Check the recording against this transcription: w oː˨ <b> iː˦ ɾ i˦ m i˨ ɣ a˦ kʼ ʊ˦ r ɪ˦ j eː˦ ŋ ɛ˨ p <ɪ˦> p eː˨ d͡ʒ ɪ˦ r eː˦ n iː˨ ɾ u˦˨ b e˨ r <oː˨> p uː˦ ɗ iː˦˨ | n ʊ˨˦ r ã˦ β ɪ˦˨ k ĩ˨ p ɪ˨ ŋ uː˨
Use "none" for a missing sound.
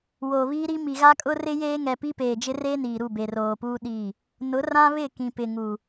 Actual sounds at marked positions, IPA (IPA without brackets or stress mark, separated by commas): β, i˦, oː˨